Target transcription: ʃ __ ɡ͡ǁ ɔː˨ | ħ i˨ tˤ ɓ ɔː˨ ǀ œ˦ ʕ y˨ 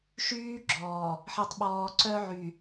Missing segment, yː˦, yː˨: yː˦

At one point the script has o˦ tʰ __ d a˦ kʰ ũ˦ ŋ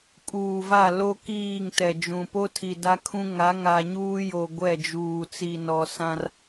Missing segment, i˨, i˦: i˨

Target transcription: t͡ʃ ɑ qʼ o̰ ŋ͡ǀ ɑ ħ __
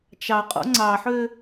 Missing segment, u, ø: ø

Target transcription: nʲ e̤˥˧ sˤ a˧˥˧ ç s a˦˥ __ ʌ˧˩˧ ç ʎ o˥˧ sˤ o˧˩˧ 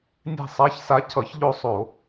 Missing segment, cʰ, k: cʰ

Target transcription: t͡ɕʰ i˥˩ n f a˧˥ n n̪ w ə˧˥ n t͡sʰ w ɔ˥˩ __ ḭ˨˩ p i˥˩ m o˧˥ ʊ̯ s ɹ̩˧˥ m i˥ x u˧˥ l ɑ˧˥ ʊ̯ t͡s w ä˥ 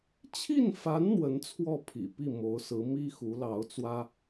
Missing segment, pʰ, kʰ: pʰ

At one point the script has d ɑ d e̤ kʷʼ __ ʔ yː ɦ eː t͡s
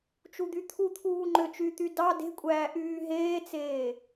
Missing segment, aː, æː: æː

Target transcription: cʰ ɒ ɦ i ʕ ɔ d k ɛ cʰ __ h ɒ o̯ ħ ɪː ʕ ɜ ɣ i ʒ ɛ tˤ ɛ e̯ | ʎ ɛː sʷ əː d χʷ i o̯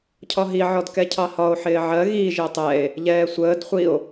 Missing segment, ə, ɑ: ɑ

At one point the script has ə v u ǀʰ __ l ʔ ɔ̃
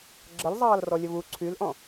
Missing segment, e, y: y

